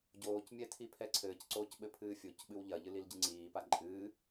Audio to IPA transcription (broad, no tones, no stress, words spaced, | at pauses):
ɟoːcmʲɛ tʰipʰɛǀʰɘːcǀoːc ɓɘpʰɨːfʲocɓɨw ʎɐʎɨ lilɟɨŋ͡ǀiːpa ǃʼɨː